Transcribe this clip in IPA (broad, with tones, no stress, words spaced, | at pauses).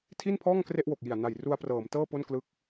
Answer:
tʰi˥˩npʰɔː˥˩ŋ kre˥˩ʔwo˨˩k̚ji˨˩a̯ na˨˩j ru˧a̯prɤː˩˦m tɤː˥˩ po˥˩n klɯ˦˥k̚